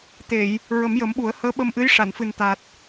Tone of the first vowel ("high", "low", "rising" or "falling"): low